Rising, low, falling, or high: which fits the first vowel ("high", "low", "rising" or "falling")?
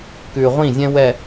low